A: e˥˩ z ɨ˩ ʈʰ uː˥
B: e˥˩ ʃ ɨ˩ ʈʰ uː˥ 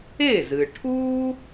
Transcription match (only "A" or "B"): A